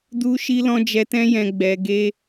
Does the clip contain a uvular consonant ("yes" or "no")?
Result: no